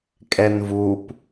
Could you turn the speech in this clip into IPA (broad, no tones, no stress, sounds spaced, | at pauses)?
kʼ ɛ n v u p